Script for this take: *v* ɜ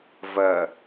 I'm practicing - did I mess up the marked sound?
no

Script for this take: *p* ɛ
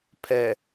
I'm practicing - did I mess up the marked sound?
yes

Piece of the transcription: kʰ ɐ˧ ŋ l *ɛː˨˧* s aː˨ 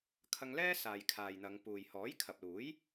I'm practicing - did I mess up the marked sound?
yes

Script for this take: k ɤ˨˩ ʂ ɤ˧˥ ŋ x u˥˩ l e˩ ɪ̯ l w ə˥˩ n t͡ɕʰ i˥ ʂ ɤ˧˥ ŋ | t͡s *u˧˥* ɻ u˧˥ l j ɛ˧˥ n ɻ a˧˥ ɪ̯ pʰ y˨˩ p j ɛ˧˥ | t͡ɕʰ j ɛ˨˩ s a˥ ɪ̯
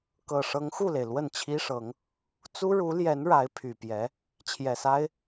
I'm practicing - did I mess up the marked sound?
yes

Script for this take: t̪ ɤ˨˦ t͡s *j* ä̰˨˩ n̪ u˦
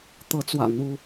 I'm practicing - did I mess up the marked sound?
yes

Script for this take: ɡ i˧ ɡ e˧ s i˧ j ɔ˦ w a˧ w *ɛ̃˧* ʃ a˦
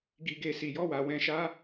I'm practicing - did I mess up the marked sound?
no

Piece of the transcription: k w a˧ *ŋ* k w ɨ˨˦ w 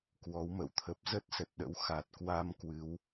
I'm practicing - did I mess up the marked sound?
yes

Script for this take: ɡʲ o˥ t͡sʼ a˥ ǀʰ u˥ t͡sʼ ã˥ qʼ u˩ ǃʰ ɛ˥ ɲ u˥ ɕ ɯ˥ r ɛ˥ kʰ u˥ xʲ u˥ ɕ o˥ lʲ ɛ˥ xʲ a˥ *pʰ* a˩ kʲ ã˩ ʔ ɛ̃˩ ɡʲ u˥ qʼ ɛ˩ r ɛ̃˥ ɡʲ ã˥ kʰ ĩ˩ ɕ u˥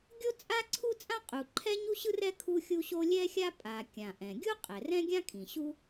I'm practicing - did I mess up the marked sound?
yes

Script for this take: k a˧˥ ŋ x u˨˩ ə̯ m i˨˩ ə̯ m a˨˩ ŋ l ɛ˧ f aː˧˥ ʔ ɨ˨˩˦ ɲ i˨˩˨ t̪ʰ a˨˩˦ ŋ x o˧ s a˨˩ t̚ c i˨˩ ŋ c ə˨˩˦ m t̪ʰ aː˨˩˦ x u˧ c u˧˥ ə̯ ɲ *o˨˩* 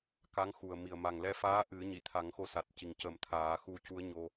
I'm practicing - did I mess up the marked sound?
yes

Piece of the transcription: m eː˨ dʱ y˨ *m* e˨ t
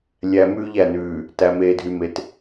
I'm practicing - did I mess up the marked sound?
no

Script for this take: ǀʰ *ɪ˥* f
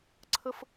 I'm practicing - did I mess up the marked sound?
yes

